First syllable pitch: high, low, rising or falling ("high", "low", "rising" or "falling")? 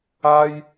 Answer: high